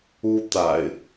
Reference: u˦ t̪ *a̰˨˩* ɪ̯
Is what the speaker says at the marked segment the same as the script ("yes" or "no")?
yes